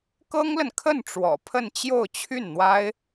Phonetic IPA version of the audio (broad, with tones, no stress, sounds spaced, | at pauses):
k ɤ˥ ŋ l ə˨ n kʰ ə˥˩ n ʈ͡ʂ w ɔ̰˨˩ pʰ ə˥˧ n t͡ɕ j o˥˧ ʊ̯ t͡ɕʰ y˥˩ n n̪ w a˥ ɪ̯